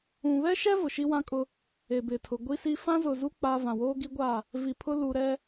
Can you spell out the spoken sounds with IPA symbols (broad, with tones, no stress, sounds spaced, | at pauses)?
ũ˨ β ɛ˦ ʃ ɛ˦ v ʊ˨ ʃ i˦ w ã˦ kʼ ʊ˦ | e˨ b ɪ˨ tʰ ʊ˨ ɡʷ i˦ s i˦ f ã˦ z ʊ˨ z u˦ k͡p a˦ v ã˨ w oː˦ ɡ i˦ ɡʷ a˦˨ | v i˨ pʰ ʊ˦ l u˨ ɾ ɛ˦